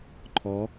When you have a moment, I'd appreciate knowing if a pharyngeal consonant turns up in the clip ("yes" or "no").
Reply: no